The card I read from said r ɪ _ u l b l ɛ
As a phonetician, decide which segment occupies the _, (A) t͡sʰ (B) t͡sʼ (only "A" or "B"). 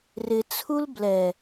A